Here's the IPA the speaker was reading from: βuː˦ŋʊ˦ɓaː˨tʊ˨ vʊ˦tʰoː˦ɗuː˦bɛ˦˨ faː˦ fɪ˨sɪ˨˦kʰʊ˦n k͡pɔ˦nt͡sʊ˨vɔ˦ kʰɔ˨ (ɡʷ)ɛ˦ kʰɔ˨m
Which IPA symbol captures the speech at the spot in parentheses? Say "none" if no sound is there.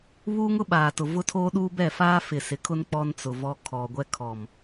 ɡʷ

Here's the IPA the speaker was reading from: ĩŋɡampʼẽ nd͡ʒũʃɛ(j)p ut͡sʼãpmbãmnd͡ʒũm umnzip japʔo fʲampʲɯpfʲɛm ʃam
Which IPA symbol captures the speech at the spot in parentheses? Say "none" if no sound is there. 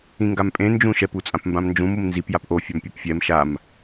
none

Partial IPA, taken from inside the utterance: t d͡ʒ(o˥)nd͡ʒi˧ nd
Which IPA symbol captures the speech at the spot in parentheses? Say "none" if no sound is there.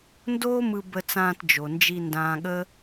o˩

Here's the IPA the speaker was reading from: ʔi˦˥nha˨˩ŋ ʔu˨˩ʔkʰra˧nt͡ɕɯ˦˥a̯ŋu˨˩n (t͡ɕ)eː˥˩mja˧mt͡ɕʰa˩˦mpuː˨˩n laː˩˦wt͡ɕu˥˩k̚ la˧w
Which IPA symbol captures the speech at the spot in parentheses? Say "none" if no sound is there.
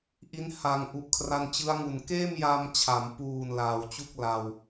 k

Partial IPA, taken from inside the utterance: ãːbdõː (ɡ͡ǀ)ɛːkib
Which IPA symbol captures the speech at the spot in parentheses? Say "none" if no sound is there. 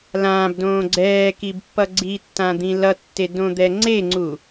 ɡ͡ǀ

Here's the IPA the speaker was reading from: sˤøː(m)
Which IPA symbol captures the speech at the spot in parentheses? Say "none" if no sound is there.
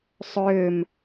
m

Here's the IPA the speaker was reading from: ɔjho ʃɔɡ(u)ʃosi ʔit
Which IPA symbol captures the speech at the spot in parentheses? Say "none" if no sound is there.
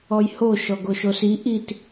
o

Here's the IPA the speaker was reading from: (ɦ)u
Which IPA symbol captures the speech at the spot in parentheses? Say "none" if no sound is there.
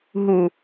ɦ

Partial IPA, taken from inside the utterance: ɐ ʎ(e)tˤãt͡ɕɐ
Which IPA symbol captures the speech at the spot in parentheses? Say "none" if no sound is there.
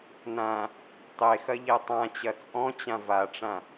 ɛ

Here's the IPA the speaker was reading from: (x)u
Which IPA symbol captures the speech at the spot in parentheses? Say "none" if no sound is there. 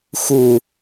x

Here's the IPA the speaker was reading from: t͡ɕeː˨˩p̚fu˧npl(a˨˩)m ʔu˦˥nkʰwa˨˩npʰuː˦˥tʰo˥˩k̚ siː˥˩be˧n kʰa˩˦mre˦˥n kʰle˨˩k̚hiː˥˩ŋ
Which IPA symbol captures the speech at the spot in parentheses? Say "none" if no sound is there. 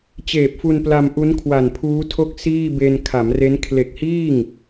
a˧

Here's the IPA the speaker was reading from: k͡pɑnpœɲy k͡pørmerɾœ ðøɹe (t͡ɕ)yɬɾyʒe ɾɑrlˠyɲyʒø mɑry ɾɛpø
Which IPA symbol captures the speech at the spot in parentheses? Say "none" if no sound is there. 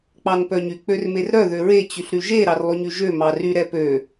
t͡ɕ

